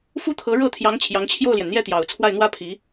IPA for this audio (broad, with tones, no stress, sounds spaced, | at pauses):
f u˥ t̪ʰ ɤ˧˥ ɻ ɤ˥˩ t̪ʰ j ɑ˧˥ ŋ t͡ɕʰ j ɑ˧˥ ŋ t͡ɕʰ j o˥˩ ʊ̯ l j ɛ˩ n n̪ j ɛ˥˩ t̪ j ɑ˨˩ ʊ̯ t͡sʰ w a˥˩ ɪ̯ n̪ w ä˥ pʰ i˧˥